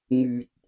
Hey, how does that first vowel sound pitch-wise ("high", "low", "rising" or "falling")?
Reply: low